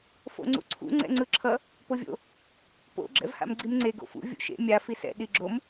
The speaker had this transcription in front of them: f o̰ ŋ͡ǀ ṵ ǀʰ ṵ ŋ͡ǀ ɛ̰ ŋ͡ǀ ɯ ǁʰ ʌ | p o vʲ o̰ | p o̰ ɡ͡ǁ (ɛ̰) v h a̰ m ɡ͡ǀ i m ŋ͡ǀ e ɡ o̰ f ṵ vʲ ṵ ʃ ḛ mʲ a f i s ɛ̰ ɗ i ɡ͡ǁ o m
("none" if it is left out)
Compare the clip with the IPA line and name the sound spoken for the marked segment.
ɛ̰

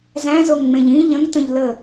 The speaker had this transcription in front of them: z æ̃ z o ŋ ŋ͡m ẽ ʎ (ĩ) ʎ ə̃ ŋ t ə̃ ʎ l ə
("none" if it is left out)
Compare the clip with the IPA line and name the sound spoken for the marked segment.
ĩ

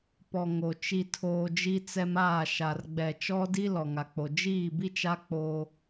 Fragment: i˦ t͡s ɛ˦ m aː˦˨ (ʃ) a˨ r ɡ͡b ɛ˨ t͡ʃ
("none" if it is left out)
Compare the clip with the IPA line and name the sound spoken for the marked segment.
ʃ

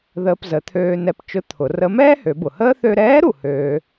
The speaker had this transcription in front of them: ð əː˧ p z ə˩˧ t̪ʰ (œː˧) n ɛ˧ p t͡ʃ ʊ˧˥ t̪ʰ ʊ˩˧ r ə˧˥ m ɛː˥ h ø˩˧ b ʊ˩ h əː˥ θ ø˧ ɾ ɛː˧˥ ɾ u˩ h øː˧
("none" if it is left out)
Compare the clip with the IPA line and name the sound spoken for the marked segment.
øː˧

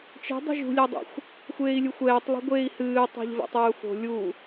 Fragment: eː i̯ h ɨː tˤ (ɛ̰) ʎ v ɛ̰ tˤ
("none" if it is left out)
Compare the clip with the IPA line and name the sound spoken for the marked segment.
ɛ̤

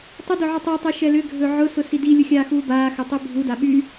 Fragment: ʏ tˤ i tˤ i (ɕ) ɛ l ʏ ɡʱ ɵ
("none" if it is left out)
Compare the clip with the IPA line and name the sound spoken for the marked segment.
ʃ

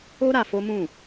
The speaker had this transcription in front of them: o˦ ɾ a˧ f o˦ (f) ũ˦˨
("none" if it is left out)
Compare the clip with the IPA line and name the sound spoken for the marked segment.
m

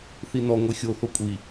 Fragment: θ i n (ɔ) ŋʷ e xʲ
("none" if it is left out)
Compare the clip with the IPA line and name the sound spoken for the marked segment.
ɔ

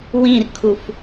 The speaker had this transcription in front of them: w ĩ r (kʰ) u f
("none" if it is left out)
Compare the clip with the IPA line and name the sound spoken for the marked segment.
kʰ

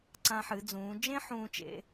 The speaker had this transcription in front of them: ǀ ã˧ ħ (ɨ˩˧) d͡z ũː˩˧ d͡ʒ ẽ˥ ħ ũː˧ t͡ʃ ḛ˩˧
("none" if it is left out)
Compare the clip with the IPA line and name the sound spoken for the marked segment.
ɨ˩˧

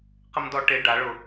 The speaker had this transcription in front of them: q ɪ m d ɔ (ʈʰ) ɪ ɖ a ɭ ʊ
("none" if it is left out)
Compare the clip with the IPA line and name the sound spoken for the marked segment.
ʈ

